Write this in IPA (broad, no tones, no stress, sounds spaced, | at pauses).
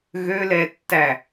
ɣ ø l ɛ tː æ